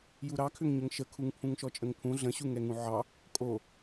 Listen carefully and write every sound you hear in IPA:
j u ɾ ɑ kʰ ʏ ŋ ɲ ə ŋ ʃ ə kʰ u ŋ pʰ ũ ŋ ʃ ɔ t͡ʃʼ ə ŋ pʰ ũ ɮ ə̃ ɕ u ŋ ɛ ŋ ũ ʕ ɑ | kʼ o

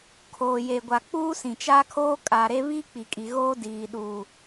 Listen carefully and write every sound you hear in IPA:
kʰ oː˨ j e˨ ɡʷ a˨ k͡p uː˦ s ĩ˨ t͡ʃ aː˦ kʰ oː˦ kʼ a˨ ɾ e˦ β i˦ k͡p i˨ kʼ i˨ ɣ oː˦ d iː˨ ɗ uː˨

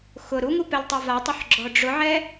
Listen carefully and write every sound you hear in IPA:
x ʊ ɾ u ŋ u p ɛ l tˤ ɛ v a tˤ ʊ ħ ɡ͡ǁ ɔ ɖ͡ʐ ʊ ʕ ɛ

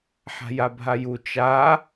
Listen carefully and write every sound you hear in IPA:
ħ a̤ j a bʱ a j u t͡ʃ a

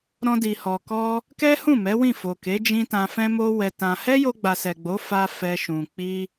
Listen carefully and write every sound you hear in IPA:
ɾ ɔ̃˧ d i˨ h ɔ˨ k ɔ˧ | k ɛ˦ h ũ˦˨ m ɛ˨˦ w ĩ˦˨ f o˨ k e˨˦ d͡ʒ ĩ˦ t ã˧ f ɛ̃˧ m o˧ w ɛ˧ t ã˧ h ɛ˦ j o˧ ɡ͡b a˨ s ɛ˨ ɡ͡b o˨˦ f a˧ f ɛ˧ ʃ ũ˨ k͡p i˧

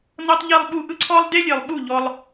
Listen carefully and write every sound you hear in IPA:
n ɤ˦ tˤ ʎ i˧ lˠ ɓ u˧ ʔ ɯ˦ ǀʰ ɔ˦ lˠ d e˦ lʲ e˨ lˠ ɓ u˦˨ ʎ ɔ˧ lˠ

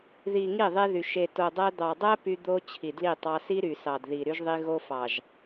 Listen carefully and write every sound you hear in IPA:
ð i˨ ŋ i˦˨ ðˤ e˦ ð y˨ ʃ e˨ t o˨ dˤ æ˦ d̪ ɑ˨ dˤ æ˦ p y˦ d̪ o˦ t͡ɕʰ i˨ d l i˦˨ tˤ ɑ˦ s i˦ ɾ y˨ s ɑ˨ d ð i˨ ɾ y˦ ʒ ðˤ i˦ ɣ o˦ f ɑ˨ ʒ

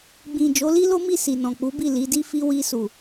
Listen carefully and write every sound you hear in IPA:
ɡ͡b ĩ˨ d͡ʒ o˨˦ l i˦ l o˦ m i˦˨ s i˨ n ɔ̃˨ k͡p u˨˦ b i˦˨ l i˨˦ d i˦ f i˦ w i˧ s u˨

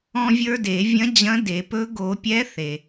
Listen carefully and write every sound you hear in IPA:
ɔ̃˧ vʲ ə˞˧ d e˨˩˦ vʲ ɐ̃˧˥ d͡ʑ ɐ̃˧˥ d e˨˩˦ p ɵ˧˥ ɡ o˨˩˦ pʲ ɛ˧˥ θ e˩

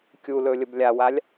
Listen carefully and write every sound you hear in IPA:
kʲ u l ɵ lʲ ə b lʲ a w a lʲ

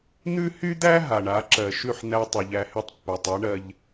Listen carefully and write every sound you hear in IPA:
n̪ ʉ˥ h y˥ d̪ æ˥ ɦ a˩ ɳ a˩˥ ǁ ɜ˩ ʃ ʉ˥˩ ħ n̪ æ˧ tˤ y˩ ʎ æ˧ h y˥˩ tˤ pː æ˩ tˤ ɛ˩˥ ɳ ɜ˧ ʎ

